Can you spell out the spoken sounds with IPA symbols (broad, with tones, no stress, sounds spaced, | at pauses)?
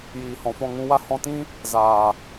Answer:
j iː˨ h ɔ̃˨ f ɔ̃˦˨ ŋ ũ˦ w a˦ h ɔ̃˧ t ĩ˦ | z aː˨